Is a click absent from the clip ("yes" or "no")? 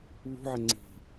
no